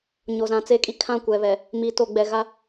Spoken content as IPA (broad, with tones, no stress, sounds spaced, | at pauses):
ɲ o˨ z ã˨ t͡s e˦ kʼ i˦ kʰ ã˦˨ kʷ ɛ˨ β ɛ˨ | m i˨ t o˨ ɡ͡b ɛ˨ ɣ a˦